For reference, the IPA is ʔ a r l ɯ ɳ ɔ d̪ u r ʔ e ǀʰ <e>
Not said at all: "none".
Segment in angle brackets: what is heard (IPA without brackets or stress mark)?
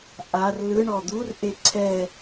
ɛ